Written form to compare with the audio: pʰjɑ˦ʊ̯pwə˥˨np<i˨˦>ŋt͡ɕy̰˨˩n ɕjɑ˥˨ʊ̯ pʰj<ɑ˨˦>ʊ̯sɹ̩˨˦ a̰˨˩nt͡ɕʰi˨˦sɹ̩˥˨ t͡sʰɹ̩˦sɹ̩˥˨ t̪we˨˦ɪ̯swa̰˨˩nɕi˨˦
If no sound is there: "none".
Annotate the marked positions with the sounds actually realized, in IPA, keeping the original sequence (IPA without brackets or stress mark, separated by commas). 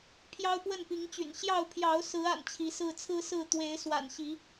i˨˦, ɑ˨˦